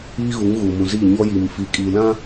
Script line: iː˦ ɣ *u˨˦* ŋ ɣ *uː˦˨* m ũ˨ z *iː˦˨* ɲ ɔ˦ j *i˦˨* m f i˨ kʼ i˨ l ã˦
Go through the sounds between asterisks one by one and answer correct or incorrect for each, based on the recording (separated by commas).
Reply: correct, incorrect, correct, incorrect